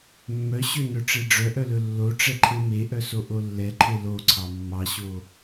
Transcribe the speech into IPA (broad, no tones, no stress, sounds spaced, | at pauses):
mː œ ɕ ø n œ ʈ͡ʂ e ɖ͡ʐ œ ʔ œ l ɵ lː o ʈ͡ʂ ɛ ǃʰ e m e ʔ œ s o ʔ o lː ɛ ǃʰ e l o ǀʰ ɑ mː ɑ ɕ o